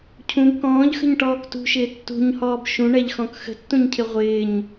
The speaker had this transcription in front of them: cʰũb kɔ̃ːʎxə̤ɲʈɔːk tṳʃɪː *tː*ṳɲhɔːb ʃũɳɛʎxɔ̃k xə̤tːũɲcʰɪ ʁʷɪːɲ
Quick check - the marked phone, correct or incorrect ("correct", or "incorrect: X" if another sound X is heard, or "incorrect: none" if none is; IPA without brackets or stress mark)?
correct